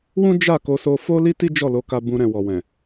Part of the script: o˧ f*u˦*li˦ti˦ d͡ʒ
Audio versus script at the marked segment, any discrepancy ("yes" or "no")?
yes